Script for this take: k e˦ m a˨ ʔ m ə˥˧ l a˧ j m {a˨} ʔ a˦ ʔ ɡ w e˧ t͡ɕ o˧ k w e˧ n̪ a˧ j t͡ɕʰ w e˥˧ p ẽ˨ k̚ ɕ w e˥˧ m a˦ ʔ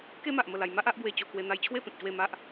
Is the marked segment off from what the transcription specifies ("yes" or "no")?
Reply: yes